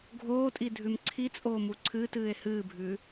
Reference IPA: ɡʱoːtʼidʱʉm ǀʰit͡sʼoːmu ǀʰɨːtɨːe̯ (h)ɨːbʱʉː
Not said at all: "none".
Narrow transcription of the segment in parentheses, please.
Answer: h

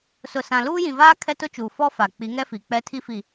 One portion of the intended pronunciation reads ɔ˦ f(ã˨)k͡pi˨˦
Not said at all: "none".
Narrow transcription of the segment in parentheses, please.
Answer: a˨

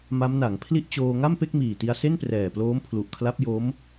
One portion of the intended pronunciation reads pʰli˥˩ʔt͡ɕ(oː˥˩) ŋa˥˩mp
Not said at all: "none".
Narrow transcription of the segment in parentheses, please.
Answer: oː˧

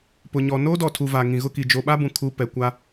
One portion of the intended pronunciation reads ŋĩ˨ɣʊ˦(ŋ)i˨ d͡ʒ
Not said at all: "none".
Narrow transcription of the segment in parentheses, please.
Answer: k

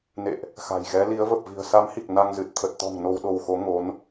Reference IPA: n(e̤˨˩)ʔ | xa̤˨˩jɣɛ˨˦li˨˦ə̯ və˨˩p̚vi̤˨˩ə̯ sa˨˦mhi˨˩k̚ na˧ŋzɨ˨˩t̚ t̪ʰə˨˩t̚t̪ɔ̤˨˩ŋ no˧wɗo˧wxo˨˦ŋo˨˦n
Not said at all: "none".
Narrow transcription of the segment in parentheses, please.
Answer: ḛ˧˨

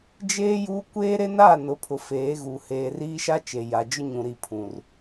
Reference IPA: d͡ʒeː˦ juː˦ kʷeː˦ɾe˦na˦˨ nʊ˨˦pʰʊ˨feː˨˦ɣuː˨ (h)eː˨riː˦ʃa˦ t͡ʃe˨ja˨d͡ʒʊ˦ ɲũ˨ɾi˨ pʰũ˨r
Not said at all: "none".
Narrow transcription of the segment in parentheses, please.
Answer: h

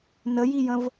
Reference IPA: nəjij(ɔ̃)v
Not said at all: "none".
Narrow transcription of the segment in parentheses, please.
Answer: ə̃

